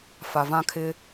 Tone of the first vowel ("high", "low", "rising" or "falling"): low